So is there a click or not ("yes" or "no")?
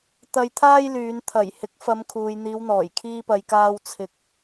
no